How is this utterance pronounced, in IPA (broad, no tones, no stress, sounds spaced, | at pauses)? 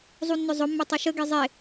zˤ u nː ʏ zˤ ʊ mː ʏ tˤ ɐ ʃ ə ɡ e zˤ e